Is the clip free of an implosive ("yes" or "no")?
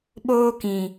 no